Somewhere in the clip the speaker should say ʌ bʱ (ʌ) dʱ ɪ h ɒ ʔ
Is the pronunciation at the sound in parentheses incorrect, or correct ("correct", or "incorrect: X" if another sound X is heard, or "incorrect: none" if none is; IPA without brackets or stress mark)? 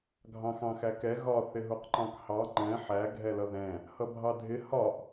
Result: incorrect: ɑ